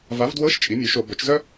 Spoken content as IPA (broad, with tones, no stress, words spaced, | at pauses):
va˩˥vdwɤ˧˥˧ʃ t͡ʃʼi˩˥mʲo˩˥ʃo˧˩˧ bœ˩˥t͡ʃzœ˥